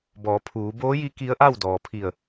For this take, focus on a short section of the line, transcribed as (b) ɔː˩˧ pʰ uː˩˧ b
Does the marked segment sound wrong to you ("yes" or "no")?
no